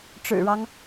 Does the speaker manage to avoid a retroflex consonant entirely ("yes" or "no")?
no